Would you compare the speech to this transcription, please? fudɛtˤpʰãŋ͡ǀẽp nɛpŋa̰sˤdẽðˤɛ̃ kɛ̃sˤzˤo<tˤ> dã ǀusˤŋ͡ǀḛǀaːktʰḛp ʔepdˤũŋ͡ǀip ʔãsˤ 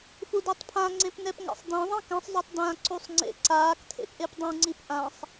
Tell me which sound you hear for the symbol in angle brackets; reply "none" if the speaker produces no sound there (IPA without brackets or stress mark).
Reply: tˤ